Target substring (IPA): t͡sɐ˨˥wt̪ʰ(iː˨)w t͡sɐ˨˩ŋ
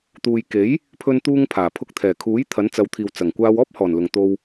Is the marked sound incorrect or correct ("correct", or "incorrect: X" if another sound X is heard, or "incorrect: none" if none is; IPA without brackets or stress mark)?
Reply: correct